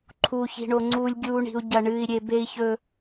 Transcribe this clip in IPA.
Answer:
ǃʰ u˦ ç i̤˦ ɳ o˦ ŋ͡ǀ uː˦ lʲ ɡʲ uː˦ ɳ i̤˦ u̯ ɟ ɐ˦ ɳ ɨː˦ i̯ ɾʲ e˦ b e˦ i̯ ç ɵ˦

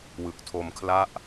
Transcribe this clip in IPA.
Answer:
w ɯ˨˩ k̚ tʰ o˧ m kʰ l a˥˩ ʔ

